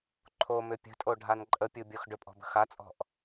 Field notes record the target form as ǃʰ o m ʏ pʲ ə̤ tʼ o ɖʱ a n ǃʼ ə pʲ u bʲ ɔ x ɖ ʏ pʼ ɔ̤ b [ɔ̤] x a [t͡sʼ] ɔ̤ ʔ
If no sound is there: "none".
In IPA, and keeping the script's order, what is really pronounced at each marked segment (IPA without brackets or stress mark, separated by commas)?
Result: ə̤, t͡sʼ